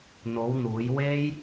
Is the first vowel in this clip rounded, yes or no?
yes